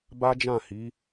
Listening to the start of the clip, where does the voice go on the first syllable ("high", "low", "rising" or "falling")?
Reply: high